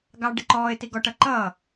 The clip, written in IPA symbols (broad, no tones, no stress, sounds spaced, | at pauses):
ɡ ɑ ɖ ɪ ǃ ɔː ɪ̯ t i ɡ ɔ ʈ ʌ ǃ ʌː